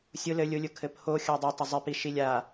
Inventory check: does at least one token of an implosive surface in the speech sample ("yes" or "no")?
no